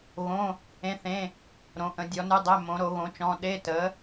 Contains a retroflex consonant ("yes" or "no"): no